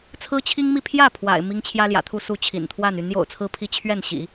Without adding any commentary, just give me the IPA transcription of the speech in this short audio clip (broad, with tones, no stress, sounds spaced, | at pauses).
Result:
t͡sʰ ɹ̩˥ t͡ɕʰ i˥ ŋ m i˥˧ pʰ j ä˥˩ pʰ w a̰˨˩ ɪ̯ m i˥ ŋ t͡ɕʰ j ä˥ l j ä̰˨˩ t̪ʰ u˥˧ s u˥˩ t͡ɕʰ ḭ˨˩ n t̪ʰ w a˥˩ n y˧˥ n j o̰˨˩ ʊ̯ t͡sʰ ɹ̩˥˧ pʰ i˥˧ t͡ɕʰ ɥ ɛ˥˩ n ɕ ḭ˨˩˦